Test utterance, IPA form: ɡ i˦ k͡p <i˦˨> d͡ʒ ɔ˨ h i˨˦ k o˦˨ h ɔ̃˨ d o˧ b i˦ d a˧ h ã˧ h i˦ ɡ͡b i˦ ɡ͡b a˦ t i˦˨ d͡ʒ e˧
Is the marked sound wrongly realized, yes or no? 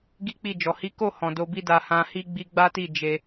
no